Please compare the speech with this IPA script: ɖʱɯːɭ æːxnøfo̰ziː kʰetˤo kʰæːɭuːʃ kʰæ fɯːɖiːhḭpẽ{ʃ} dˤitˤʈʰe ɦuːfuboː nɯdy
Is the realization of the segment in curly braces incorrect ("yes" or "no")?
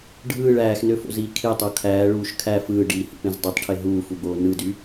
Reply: yes